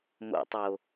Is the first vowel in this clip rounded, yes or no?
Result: yes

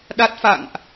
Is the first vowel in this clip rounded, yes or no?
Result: no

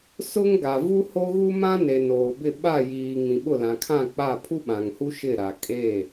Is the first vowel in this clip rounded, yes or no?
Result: yes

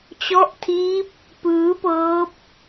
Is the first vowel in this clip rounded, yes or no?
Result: yes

